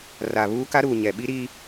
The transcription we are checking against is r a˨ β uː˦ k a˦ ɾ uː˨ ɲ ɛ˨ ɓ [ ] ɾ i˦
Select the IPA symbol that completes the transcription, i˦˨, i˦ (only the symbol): i˦